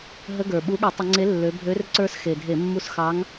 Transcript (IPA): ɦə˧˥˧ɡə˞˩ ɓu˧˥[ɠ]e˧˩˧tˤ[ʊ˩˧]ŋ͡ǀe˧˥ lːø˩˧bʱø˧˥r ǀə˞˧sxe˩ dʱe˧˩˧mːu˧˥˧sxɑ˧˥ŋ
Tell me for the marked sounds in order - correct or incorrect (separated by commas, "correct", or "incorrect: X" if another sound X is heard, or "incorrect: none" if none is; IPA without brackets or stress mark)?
correct, incorrect: ə˩˧